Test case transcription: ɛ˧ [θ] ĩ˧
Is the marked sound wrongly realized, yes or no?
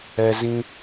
yes